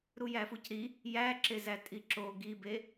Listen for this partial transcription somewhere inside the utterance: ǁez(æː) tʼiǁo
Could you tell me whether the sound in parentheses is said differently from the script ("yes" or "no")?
yes